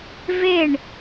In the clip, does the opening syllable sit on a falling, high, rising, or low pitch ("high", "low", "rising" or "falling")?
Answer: falling